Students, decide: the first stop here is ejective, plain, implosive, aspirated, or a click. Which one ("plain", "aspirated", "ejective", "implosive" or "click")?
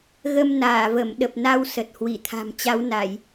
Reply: implosive